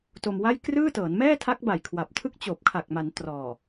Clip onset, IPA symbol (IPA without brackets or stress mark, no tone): t